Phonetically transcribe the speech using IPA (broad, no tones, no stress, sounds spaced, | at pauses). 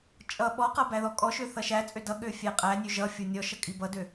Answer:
t͡ʃʼ ʌ ɓ ɔ q ʌ b æ ð ɔ kʼ ɔ ʃ ø θ ʌ ʃ æ t͡sʼ ø d ʌ ɠ ø fʲ æ qʼ æ nʲ ø ʒ ʌ fʲ o nʲ ɔ ʃ ʌ kʼ i b ʌ d ø